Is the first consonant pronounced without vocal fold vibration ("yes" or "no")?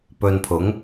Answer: yes